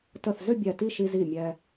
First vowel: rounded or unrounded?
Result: unrounded